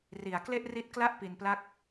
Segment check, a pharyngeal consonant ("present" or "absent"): absent